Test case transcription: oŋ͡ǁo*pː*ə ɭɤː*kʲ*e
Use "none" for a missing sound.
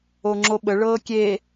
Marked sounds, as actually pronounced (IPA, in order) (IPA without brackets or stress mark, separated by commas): ɓ, kʲ